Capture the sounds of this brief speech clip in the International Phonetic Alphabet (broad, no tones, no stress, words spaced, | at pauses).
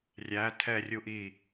rʲæ tʰɛrʲu ʔi